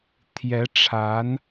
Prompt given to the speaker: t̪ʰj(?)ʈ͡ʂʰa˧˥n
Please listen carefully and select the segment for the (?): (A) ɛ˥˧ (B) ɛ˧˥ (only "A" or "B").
B